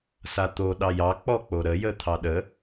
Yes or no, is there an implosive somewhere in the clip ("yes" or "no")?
yes